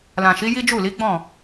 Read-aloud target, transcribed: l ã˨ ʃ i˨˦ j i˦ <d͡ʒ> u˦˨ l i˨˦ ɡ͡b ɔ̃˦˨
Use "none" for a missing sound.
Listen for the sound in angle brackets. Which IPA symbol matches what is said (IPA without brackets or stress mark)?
d͡ʒ